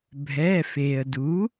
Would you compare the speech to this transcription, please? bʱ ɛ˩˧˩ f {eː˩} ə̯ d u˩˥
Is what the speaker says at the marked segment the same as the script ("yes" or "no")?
yes